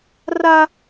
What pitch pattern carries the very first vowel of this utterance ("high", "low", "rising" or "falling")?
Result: high